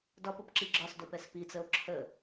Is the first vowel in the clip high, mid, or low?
low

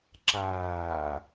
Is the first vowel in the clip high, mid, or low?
low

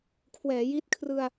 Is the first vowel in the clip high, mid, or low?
mid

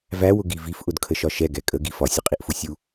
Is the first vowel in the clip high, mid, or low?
low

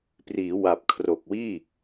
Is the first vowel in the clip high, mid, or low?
high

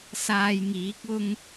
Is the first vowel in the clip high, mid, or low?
low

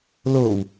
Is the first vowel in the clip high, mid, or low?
mid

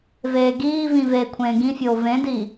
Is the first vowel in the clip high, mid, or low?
mid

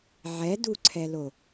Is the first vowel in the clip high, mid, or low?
mid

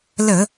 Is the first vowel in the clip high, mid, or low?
mid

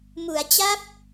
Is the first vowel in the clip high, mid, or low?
high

